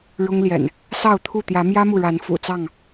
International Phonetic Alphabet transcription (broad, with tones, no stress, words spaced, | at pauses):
ɻʊ˦ŋljɛ̰˨˩n | sɑ˥˨ʊ̯t̪ʰu˥˨ t̪jä˨˦mjä˦mu˨ɻa˨˦n fṵ˨˩t͡sɑ˥˨ŋ